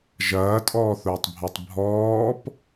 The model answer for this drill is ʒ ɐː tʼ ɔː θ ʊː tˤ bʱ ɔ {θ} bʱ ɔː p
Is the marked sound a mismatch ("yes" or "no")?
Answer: yes